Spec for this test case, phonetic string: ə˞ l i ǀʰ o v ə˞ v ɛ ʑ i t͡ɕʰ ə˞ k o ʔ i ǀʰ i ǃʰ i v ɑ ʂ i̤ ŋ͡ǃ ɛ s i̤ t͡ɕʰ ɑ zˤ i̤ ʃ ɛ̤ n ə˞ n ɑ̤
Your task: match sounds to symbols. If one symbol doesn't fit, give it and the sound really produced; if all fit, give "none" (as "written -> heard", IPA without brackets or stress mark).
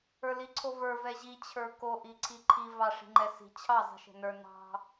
none